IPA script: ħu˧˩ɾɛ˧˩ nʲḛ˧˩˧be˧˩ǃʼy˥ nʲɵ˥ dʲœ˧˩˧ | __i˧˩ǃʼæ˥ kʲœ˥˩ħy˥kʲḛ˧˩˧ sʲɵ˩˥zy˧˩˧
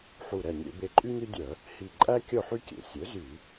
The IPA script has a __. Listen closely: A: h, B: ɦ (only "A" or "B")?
A